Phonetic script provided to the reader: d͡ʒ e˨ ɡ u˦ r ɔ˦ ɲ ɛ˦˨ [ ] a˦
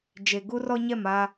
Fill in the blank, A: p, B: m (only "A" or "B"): B